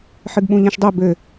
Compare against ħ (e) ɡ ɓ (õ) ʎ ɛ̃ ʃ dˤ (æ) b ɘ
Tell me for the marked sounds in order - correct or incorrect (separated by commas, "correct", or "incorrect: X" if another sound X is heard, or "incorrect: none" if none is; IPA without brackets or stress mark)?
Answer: incorrect: ɨ, incorrect: ũ, incorrect: ɛ